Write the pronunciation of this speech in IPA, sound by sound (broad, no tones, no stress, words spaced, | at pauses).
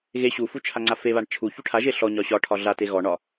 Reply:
ɣe ɕufu t͡ʃʰaŋ͡ǀafeβaɳ t͡ʃʰu çuʈʰaʒe ɬɔɲɒ ɕɒ ʈʰɒɮate ɣɔɳɒ